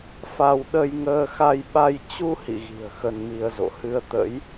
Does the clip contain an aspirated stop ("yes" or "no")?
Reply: no